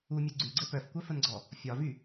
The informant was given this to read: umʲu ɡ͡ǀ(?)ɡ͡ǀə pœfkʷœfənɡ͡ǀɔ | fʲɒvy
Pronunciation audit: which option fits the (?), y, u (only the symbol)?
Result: y